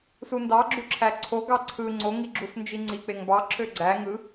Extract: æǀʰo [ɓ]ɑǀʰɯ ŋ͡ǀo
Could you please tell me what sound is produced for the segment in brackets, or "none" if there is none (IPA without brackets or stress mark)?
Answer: ɡ